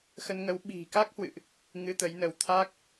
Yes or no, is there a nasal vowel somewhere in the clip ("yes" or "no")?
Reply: no